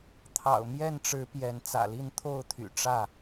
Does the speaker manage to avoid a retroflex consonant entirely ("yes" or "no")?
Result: no